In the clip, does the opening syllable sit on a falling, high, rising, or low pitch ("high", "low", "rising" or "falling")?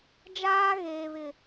high